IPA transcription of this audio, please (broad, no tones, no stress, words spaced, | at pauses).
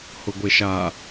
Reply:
hʊɡʷeʃa